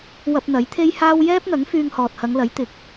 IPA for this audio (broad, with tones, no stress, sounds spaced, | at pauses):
w ɐ˧ p̚ n̪ ɐ˨˥ j t̪ʰ e˥ j h aː˥ w j ɛː˥ p̚ n̪ ɐ˨˥ ŋ f yː˧ ŋ h ɔː˨ t̚ h ɐ˨˧ ŋ l ɐ˨˥ j t̪ ɪ˨˥ k̚